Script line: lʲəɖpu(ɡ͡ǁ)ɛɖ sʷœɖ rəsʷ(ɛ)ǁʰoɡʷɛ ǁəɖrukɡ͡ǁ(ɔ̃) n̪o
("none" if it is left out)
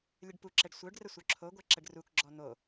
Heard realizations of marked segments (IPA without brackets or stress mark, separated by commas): ǁ, œ, ɔ